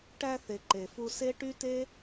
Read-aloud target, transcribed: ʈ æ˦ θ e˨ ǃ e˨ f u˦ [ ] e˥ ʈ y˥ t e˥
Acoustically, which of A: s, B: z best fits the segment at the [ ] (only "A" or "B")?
A